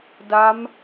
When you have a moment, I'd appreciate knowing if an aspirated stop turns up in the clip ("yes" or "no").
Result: no